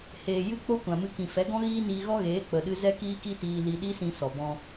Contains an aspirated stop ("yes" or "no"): no